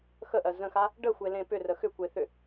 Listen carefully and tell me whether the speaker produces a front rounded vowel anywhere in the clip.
yes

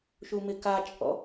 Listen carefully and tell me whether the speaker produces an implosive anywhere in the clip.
no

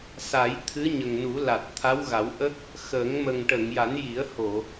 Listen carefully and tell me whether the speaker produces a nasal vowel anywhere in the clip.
no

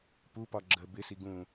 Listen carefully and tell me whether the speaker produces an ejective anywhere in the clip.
no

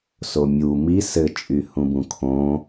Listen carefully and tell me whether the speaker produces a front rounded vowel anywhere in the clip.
yes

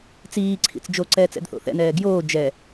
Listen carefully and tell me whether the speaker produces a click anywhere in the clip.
yes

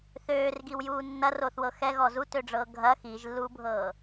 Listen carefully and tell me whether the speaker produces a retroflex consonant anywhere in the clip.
yes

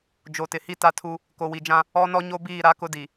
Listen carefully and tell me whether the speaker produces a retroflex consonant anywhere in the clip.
no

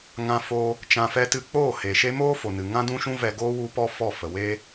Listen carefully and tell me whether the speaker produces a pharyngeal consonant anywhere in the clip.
no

